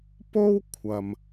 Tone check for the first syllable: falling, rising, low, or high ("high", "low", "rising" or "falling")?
high